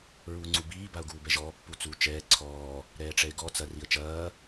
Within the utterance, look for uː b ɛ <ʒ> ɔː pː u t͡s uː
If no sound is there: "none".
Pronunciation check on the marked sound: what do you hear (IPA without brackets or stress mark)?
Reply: ʒ